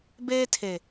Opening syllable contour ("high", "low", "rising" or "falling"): high